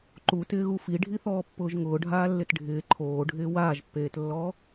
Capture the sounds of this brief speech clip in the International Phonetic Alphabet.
ǃ u t ɪː ɣ u f i ɖʱ i θ ɔː pː ʊː ʒ ŋ ʊː ɖʱ aː lː ɪ t ɖʱ ɪː ǃʰ oː ɖʱ ɪː w aː ʒ pː eː t lː ɔ

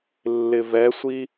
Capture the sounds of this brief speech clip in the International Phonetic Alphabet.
lː ɪ v ɛ sʷ i

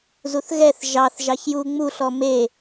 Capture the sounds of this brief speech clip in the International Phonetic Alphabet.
z u θ ɣ ɛ θ ʒ ɑ θ ʒ ɑ ç j u ŋ͡m u ɬ ɔ m e

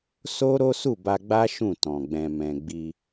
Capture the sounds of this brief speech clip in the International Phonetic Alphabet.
s o˦ ɾ o˦ s u˦˨ b a˧ ɡ͡b a˦ ʃ ũ˦˨ t ɔ̃˨ ɡ͡b ɛ̃˧ m ɛ̃˧ ɡ͡b i˧

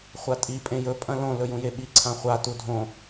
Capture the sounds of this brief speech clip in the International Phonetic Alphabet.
χʷ a tʼ i pʼ ẽ j ɵ pʼ ɐ̃ l õ l ɵ j ũ j e ɓ i ǀʰ ã χʷ a t u dʱ õ

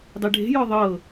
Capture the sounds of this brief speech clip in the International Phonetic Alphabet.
dˤ e ɖʱ e̤ j ɔ ðˤ ɤ

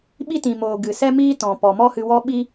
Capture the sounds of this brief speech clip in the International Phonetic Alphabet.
ɓ i˦ t ĩ˨ m oː˨ ɡ ɨ˨ s ɛ˦ m iː˦ t ɔ̃˨ p ɔ˨ m ɔ˦ h ɨ˧ w ɔ˦ ɓ i˦

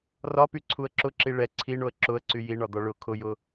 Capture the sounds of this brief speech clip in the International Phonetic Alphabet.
r ɒ p y ǀʰ u ə̯ ǁ ʊ ǁ i ɭ ɛ ǀʰ i ɳ o ə̯ ǁ ʊ ə̯ ǀ y j i ɳ ɒ d̪ ɒ ɭ ʊ kʰ ʊ j ʊ

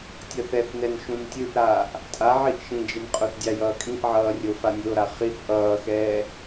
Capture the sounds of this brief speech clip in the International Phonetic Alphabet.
tʲ ʌ θ ɛ θ n ɛ n ʃ ũ n tʲ ɯ ʔ ɾ aː ʔ | tʼ a ʕ i ʔ ʃ ĩ d͡ʒ e n qʼ o θ dʲ a j ʌː kʼ ĩ ʔ ʕ ʌː rʲ o f a nʲ o ɾ a χ i θ ʔ ʌː x ɛː

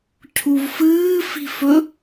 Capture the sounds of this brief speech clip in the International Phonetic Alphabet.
cʰ u v f ɨː f i̤ f ɵ

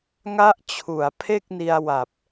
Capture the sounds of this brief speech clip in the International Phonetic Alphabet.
ŋ a˦˥ ʔ t͡ɕʰ u˩˦ a̯ pʰ e˥˩ k̚ n i˧ a̯ w a˨˩ p̚

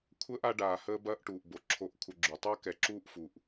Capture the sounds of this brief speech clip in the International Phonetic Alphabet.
kʷʰ əː˥ ʔ a˦ ɖ aː˨ h əː˦ b ɐː˦ ʔ ʈ uː˩ ʔ b o˩ ǁʰ o˨ ʔ kʷʰ ə˨ ɡ͡ǁ u˩ tˤ ɐː˥ k ɛ˨ ǁ uː˥ ʔ f u˩ ʔ

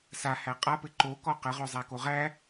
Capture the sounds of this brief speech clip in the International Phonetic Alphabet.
s a h æ qʼ a p ɘ ǃ o k ɔ q ə ʁ ɵ zˤ æ k o ʁ æ

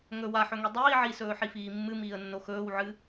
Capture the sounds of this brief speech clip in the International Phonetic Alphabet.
ŋ ɵ w a ħ ɵ ŋ i dˤ iː ʕ i s ɵː ħ i f iː mː ɨ m iː ə̯ nː o x ɵː w ʕ ɨ

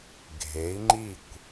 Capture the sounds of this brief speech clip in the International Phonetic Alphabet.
ɡʱ e˩˧ i̯ ŋ͡ǃ i˧˩ kʷ

